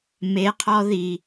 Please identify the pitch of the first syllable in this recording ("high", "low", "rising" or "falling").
rising